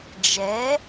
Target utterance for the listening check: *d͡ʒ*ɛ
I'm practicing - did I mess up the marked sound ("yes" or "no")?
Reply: no